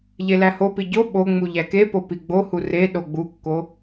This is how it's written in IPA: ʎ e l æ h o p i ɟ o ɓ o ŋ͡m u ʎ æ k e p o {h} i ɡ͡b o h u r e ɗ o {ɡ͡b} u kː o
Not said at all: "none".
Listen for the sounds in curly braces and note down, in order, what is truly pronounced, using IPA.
p, ɡ͡b

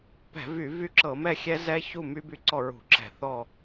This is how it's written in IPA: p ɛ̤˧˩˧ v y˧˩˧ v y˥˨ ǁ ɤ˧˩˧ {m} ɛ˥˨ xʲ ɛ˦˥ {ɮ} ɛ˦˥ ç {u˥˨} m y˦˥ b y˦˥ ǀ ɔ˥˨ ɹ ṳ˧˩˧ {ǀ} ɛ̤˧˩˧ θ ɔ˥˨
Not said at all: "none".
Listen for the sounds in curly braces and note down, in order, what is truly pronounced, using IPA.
m, z, u˥˨, ǁ

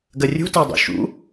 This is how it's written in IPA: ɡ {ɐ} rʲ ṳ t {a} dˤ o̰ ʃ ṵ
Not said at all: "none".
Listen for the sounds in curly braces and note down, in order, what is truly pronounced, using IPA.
ɐ, a

